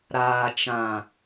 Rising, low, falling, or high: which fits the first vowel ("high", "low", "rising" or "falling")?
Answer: low